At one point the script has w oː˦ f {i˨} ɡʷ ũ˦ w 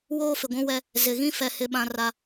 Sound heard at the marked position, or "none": ɪ˨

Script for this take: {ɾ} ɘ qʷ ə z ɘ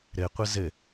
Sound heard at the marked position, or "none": ɾ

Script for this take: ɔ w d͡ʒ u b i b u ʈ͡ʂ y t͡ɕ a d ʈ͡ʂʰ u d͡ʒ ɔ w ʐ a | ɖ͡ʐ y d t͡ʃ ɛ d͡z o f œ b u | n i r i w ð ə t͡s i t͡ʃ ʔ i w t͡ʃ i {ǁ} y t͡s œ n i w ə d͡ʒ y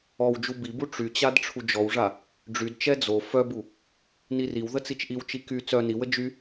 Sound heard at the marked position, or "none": k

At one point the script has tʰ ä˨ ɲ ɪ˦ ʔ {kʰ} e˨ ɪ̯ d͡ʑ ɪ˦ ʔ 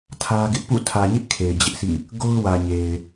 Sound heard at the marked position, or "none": kʰ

